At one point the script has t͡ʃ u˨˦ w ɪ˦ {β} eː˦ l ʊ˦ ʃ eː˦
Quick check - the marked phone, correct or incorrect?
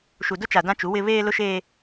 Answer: correct